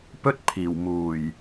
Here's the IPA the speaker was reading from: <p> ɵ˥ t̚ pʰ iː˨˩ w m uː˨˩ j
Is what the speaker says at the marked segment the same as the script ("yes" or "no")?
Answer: yes